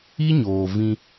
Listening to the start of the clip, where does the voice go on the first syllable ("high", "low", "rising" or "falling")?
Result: high